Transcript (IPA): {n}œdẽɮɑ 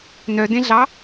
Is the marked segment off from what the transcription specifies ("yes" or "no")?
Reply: no